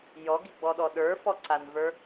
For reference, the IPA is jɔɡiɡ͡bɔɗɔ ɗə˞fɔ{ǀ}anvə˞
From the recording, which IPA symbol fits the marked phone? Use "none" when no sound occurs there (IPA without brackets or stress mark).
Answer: ǀ